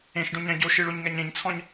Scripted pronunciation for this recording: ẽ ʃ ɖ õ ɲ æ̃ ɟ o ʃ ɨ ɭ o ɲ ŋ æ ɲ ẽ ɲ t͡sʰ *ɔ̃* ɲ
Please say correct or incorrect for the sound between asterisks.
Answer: correct